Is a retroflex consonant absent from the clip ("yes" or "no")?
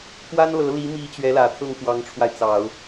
no